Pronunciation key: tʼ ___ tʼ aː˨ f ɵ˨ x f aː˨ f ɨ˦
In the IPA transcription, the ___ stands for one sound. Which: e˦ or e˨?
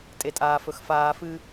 e˨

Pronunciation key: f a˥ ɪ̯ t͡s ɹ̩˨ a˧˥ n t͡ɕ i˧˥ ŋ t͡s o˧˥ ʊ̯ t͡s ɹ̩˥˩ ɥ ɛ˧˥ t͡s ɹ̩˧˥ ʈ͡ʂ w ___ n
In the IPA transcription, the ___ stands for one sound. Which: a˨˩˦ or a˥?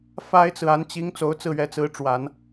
a˨˩˦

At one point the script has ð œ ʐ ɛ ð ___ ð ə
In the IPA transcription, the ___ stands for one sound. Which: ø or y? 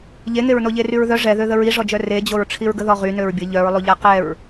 ø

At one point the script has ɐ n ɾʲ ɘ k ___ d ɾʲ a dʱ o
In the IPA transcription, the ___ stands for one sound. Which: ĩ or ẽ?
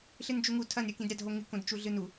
ĩ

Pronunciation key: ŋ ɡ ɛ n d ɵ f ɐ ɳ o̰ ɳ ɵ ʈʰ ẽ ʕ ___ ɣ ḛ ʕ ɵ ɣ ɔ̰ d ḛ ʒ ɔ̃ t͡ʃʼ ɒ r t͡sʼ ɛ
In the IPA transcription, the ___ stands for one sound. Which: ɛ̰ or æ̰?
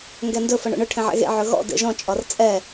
ɛ̰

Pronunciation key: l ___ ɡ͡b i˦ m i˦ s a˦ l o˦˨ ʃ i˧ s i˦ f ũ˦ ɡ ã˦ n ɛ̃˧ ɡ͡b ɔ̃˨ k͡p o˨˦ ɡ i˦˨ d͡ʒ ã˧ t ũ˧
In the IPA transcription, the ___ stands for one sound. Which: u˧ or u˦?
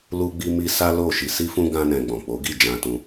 u˦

